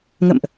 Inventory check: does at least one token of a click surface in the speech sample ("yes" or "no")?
no